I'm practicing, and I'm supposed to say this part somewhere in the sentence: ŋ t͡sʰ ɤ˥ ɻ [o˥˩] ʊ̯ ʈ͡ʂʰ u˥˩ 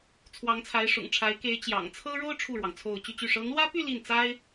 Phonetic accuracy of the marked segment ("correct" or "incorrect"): incorrect